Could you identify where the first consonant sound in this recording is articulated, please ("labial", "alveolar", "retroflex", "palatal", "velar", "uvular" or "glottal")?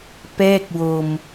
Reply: labial